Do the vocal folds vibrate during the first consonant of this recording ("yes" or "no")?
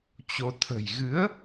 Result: no